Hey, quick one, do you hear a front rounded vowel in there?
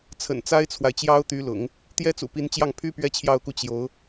yes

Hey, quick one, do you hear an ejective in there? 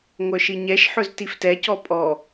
yes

